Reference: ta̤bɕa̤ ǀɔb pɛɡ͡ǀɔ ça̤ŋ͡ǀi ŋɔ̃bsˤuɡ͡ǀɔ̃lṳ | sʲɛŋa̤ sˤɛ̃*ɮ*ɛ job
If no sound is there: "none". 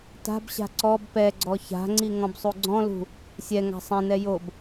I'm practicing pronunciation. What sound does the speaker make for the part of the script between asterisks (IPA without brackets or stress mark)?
n